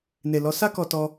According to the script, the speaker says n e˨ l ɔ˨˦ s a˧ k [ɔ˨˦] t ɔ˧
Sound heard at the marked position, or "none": ɔ˨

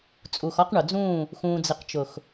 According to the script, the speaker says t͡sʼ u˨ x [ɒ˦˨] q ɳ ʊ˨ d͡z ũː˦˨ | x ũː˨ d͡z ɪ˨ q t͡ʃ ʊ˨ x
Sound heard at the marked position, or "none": ɒ˦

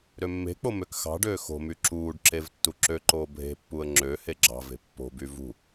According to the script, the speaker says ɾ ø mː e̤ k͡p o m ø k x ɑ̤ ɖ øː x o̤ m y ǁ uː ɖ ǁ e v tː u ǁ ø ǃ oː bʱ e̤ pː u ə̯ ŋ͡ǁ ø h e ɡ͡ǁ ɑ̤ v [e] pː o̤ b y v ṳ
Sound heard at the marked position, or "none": e̤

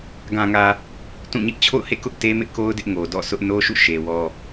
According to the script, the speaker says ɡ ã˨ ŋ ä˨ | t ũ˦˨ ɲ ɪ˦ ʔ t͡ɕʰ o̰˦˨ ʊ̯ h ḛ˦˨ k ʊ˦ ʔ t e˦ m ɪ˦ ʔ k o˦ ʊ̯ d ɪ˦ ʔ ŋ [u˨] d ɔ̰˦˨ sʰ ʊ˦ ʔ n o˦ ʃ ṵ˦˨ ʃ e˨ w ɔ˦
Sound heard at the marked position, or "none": o˨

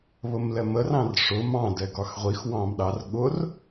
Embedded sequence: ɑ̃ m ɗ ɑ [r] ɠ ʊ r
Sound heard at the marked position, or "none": r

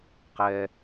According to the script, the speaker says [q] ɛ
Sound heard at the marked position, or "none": q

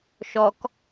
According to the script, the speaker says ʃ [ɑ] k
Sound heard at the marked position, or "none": ɔ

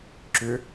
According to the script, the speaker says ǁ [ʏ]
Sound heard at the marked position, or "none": ʏ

